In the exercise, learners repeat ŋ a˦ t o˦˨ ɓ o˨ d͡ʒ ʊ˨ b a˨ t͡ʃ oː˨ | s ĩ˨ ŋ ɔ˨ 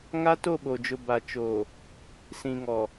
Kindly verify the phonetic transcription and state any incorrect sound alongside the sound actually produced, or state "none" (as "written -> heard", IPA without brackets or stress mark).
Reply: none